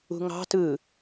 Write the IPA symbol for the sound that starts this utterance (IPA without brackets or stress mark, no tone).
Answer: ṳ